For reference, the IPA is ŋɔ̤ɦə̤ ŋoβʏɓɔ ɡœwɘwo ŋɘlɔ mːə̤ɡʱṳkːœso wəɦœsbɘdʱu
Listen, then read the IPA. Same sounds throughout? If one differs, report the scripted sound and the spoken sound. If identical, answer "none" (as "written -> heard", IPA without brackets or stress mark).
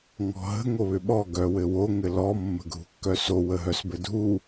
none